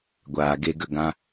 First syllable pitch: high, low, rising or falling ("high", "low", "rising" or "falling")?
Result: low